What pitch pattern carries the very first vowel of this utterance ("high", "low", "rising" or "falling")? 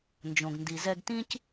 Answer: low